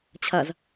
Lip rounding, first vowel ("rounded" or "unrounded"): unrounded